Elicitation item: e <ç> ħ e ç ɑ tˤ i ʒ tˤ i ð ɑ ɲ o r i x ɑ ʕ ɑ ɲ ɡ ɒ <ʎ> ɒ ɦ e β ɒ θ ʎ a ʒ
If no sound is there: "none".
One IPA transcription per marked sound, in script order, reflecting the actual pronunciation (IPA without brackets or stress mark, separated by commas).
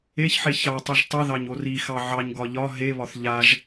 ç, ʎ